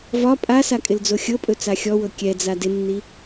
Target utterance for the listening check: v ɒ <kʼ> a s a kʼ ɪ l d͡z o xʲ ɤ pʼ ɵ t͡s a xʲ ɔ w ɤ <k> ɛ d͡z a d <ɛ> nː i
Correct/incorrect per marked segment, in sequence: incorrect, incorrect, incorrect

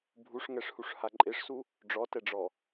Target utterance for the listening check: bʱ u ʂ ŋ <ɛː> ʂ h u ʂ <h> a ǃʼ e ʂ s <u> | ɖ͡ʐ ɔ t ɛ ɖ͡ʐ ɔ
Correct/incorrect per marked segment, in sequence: incorrect, correct, correct

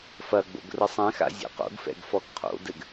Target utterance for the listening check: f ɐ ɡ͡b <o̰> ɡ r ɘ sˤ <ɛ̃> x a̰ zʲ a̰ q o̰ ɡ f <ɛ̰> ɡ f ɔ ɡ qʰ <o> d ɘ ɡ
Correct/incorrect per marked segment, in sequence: correct, correct, correct, incorrect

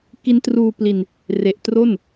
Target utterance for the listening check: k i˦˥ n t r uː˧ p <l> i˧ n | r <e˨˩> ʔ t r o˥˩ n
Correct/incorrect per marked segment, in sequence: correct, correct

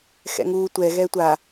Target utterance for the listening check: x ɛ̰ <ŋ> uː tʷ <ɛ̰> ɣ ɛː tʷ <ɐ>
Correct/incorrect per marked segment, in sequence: correct, incorrect, incorrect

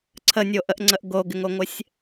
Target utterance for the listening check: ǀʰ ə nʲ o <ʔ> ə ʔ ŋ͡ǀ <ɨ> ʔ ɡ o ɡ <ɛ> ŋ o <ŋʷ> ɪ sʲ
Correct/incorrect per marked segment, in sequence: correct, incorrect, incorrect, correct

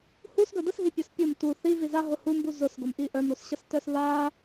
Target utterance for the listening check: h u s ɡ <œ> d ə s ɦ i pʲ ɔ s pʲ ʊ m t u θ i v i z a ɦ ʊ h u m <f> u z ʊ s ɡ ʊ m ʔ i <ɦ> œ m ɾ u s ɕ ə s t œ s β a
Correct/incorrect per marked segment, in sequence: correct, incorrect, incorrect

